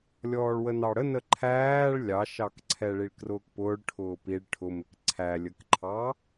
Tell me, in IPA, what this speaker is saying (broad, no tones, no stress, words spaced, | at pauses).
lʲɔːɭwənɑɽə nəǃʰæːɭ lʲɑʃɑkǀʰɛ ɭiɭkrʊːkpʊːɭ ʈʰʊːpiɭ ʈʰʊmɪk ǀʰælʲəkǃʰɑ